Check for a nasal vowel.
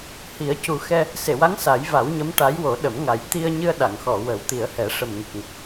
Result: absent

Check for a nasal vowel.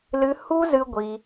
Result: absent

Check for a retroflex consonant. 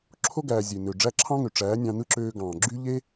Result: present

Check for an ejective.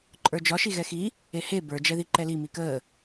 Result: present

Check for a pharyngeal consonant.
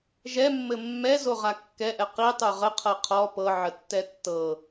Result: present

